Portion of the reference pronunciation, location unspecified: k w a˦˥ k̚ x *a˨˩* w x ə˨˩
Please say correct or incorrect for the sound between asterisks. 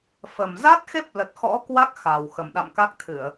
correct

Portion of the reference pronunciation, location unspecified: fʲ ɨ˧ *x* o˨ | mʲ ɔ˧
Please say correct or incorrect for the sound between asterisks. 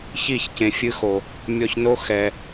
correct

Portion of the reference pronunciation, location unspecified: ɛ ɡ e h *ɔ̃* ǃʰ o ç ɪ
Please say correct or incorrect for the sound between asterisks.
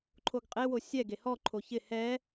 incorrect: ɔ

